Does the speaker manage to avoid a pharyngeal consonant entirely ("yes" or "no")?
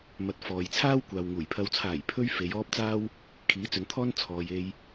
yes